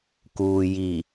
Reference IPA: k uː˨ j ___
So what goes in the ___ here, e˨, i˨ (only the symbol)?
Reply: i˨